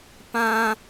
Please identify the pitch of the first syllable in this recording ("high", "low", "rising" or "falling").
high